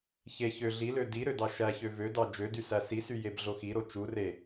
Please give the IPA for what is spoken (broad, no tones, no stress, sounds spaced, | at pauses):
ç e ç ø ɮ i l ø d i ɾ ø d ɑ ʃ æ ç ø v ø d ɑ d͡ʒ ø d y s æ s i s y j e b ɮ o x i ɾ o t͡ʃ u r e